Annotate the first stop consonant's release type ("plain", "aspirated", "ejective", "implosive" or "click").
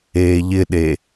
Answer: implosive